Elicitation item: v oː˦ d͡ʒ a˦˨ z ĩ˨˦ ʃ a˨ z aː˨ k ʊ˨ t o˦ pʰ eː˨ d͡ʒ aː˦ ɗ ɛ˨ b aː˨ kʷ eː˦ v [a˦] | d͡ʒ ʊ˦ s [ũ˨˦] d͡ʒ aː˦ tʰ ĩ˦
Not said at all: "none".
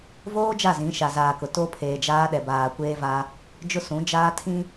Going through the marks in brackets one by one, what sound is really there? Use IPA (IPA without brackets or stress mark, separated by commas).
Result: a˦, ũ˨˦